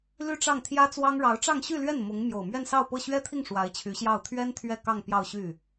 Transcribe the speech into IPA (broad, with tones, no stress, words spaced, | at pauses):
ly˥˧ʈ͡ʂɑ˥˩ŋt̪ʰjä˥t͡swɑ˥ŋ ɻɑ˧˥ʊ̯ʈ͡ʂɑ˥˧ŋɕy˥˧lɥɛ˥˩n mʊ˧˥ŋ mjo˨˩ʊ̯mɥɛ˥˧nsɑ˥˧ʊ̯pɤ˥˩ ɕɥɛ˥t̪ʰi˥˩ŋ ʂwa˧˥ɪ̯t͡ɕʰy˧˥ɕjɑ˥˩ʊ̯ t̪ʰɥɛ˥n t̪ʰɥɛ˥˧kɑ˥˧ŋ pjɑ˥˧ʊ̯ɕy˥˩